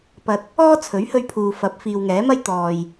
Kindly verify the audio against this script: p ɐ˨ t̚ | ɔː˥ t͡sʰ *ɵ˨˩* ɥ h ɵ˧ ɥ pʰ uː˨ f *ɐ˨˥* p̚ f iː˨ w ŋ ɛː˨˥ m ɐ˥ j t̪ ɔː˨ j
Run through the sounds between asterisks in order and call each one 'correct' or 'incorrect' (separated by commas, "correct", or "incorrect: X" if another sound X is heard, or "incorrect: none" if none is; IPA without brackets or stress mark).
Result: incorrect: ɵ˨˥, correct